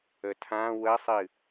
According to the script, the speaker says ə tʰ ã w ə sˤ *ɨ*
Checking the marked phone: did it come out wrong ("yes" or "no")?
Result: no